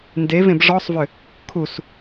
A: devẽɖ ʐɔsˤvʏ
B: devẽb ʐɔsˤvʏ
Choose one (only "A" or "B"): B